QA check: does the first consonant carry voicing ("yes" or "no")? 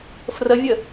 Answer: no